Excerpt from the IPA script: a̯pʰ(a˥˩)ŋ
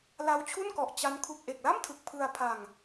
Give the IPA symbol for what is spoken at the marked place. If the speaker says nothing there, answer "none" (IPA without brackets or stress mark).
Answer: a˧